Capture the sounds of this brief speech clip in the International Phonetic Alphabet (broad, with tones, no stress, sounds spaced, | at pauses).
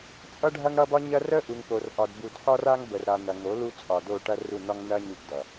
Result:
t͡sʼ ʌ˦ ɖʱ ɐ˦ ŋ ɽ ʌ˦ b ɒ˦ ɲ ɐ˦ r ə˦ ʔ u˨ ŋ p o˨ r ʔ ɒ˨ d b u˨ d ħ ɒ˦ r a˦ ŋ b ə˨ r ɾ a˨ n ɐ˨ ŋ o˨˦ l u˦ t͡sʼ ɒ˨ d o˦˨ ʈ ɐ˦ r u˦˨ n ɒ˦ ŋ n ɐ˦ ɲ u˦ p d ʌ˨